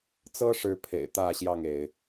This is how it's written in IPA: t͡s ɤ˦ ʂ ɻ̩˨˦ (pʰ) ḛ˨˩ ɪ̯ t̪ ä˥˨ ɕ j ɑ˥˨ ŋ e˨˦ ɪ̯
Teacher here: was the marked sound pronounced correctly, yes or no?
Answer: yes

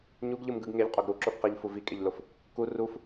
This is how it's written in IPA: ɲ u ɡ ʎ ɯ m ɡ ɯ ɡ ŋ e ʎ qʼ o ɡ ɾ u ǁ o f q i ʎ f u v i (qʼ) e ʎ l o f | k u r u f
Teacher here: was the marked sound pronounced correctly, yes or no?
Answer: no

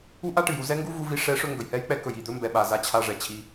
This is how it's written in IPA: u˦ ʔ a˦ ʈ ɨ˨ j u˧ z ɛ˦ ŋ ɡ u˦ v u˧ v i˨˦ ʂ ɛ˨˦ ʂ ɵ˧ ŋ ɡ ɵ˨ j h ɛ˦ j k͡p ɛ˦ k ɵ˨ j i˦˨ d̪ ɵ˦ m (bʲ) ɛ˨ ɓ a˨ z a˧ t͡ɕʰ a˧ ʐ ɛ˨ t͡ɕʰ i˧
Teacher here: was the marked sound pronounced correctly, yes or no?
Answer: no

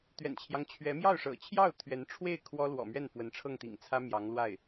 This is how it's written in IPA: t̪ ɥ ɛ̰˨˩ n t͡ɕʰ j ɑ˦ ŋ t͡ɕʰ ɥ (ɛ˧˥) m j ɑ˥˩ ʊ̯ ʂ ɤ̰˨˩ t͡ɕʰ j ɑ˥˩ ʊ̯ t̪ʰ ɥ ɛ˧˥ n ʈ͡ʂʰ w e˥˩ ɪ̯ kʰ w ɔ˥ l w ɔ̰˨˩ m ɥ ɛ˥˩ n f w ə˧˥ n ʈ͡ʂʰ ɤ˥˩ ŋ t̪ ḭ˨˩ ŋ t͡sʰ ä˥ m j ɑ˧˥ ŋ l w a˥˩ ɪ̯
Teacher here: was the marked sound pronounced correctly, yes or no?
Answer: yes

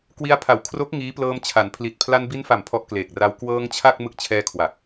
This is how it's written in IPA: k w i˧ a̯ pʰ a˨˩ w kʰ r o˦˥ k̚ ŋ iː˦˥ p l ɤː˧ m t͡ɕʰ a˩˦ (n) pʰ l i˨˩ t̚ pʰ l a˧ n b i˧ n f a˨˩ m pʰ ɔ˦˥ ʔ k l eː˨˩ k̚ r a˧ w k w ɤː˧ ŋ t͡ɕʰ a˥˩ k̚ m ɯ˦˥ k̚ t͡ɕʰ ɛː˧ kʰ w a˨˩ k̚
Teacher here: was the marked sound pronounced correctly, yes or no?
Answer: yes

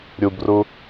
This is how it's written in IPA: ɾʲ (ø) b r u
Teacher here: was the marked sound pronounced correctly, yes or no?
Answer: no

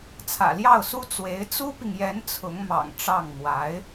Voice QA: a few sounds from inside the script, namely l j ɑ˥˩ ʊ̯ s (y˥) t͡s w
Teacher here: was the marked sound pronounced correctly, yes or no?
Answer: no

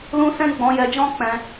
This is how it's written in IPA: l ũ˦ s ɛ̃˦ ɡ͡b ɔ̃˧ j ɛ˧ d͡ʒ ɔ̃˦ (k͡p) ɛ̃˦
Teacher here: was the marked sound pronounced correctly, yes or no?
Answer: yes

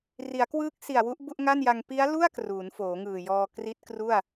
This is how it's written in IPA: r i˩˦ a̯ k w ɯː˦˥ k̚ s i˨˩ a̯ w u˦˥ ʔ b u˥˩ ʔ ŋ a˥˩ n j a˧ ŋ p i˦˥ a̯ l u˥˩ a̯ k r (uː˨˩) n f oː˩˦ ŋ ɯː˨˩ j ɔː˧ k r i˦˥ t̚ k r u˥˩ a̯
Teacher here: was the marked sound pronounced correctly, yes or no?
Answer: no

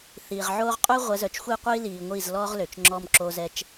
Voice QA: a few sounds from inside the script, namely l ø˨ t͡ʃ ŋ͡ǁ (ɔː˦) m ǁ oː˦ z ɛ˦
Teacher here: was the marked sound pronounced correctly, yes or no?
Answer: yes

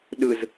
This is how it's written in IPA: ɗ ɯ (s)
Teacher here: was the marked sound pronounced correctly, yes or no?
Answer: no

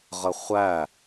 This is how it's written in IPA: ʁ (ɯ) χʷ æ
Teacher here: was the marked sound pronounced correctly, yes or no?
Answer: no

